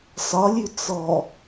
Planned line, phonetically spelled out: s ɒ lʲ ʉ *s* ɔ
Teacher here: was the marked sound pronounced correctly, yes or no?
no